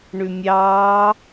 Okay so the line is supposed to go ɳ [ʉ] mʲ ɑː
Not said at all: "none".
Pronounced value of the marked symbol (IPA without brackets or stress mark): ʉ